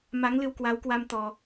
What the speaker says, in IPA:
ma˨˦ŋlɨ˧wkwa˨˦wkwa˧m t̪ɔ˧

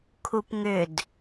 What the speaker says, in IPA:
kʰupŋʏd

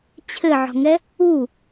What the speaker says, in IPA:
t͡ɕʰɘʕɔ̤ŋɛ | u

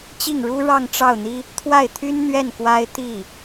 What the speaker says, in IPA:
t͡ɕi˥˩ŋɻu˥ ɻɑ˥˧ŋʈ͡ʂɑ˥˩ʊ̯n̪i˥ | t̪ʰwa˥˩ɪ̯t̪ʰy˥nn̪ɥɛ˥˩n kwa˥ɪ̯ t̪i˥˩

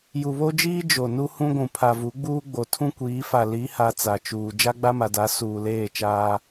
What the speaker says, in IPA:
ju˨βo˦d͡ʒiː˦ d͡ʒo˨nu˦ hũ˦ɡʷũ˨ pʰa˨vu˨˦ɡ͡buː˦ɡ͡bo˨ tʰũ˦kʷiː˨˦fa˨ li˨˦ha˨ t͡sa˨t͡ʃuː˨ d͡ʒa˦ɡ͡ba˦ma˨da˨˦ suː˨leː˦˨t͡ʃaː˦

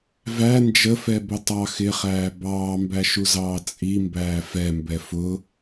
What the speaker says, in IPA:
væ nd͡ʒəfɛbʊ tˤɑ xɪχæː bɑːmbæʃuzɑː t͡sʼimbæː fɛmbɛ fʊ

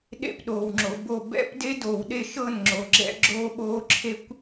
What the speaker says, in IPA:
ɗḛ˥˩pɗoː˨wŋ͡ǁo˨bo˥˩ bɛ̰˦˥pde˦˥ doː˨wɗe˥˩ʃɤː˥˩n ŋ͡ǁo˨ɡ͡ǁɛ̰˦˥ ɡ͡ǁoː˦˥ɓoː˦˥ǁʰe˦˥kʷ

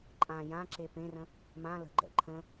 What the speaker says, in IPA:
ǃʼã jãǁe pẽrə̃ | mã lə̤ɡ͡ǃɛ̰ ǃʰə̃

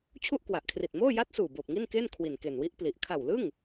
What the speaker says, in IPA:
t͡ɕʰu˥˩ʔkwa˨˩ʔkʰri˨˩t̚ moː˥˩ja˦˥t̚suː˨˩ boː˨˩p̚ŋi˥˩nkeː˥˩n kʰwi˨˩nke˨˩nwi˦˥ʔ pli˨˩ʔ kʰa˨˩wlɯ˥˩ŋ

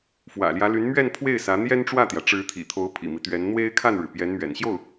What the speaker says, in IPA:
fwä̰˨˩ljä˧˥ly˧˥nmɥɛ˥˧n pʰwe˥˩ɪ̯sä˧˥ n̪jɛ˥nʈ͡ʂwä˥˩t̪jä˩ ʈ͡ʂɻ̩˧˥t̪ʰḭ˨˩t̪ʰo˧˥ʊ̯ pʰḭ˨˩mi˦t̪ɥɛ˧˥n n̪we˥ɪ̯kʰa˥˩nɻɻ̩˩ pjɛ˧˥nmɥɛ̰˨˩nɕjo˥˩ʊ̯

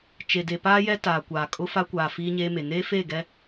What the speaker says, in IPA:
t͡ʃe˨de˨ paː˦jɛ˦ taː˨kʷaː˨ kʼʊ˦fa˦kʷaː˨ fiː˦ɲeː˦me˨ neː˦feː˦˨ ɡɛ˦

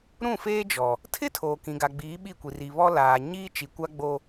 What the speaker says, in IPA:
ɾũ˦˨feː˦d͡ʒɔ˨ | tʰɪ˦ tʰoː˨kĩ˨ɡa˨ ɡ͡biː˨˦ɓi˦˨kʷi˨ ri˨βɔ˦laː˨ ɲiː˦t͡ʃi˨kʷa˦ ɡ͡bo˦

